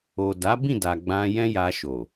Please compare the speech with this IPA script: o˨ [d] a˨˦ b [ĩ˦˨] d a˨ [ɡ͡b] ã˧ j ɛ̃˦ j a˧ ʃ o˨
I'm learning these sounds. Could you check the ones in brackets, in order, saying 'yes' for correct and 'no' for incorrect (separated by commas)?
yes, yes, yes